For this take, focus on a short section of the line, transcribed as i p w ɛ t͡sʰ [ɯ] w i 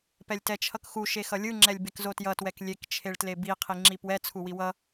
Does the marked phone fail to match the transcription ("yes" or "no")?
yes